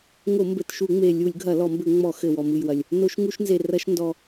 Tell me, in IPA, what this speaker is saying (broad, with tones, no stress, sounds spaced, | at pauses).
ŋ o˧˩˧ m b ɘ˨˩ t ʃ u˧˩˧ ŋ͡m e˨˩ lʲ u˧˩˧ lʲ ɡʱ ɐ˧˩˧ l ɔ˧˩˧ m b ɘ˧˩˧ ŋ͡m ɔ˧˩˧ x ɘ˨˩ w ɔ˨˩ m ɨ˨˩ j w ɐ˨˩ lʲ | n o˧˩˧ ʃ ŋ u˧˩˧ ʃ n z e˨˩ r ɐ˧˩˧ ʃ n d ɔ˨˩